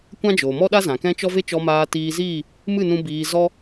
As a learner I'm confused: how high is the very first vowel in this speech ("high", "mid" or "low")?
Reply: low